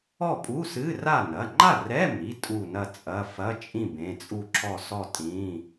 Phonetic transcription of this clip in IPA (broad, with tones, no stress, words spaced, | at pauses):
ɔ˥˨pʼu˧˥˧sɨ˧˥˧ra˥˨ nɐ˩˧˩ŋ͡ǃa˥˨rɛ˧˥˧mi˩˧˩ tʼu˥˨nɐ˥˨t͡sʼɐ˧˥˧ fɐ˧˥˧t͡ʃʼĩ˥˨ bẽ˩˧˩t͡sʼu˥˨ǁʰɔ˥˨sɔ˥˨ tʼĩ˩˧˩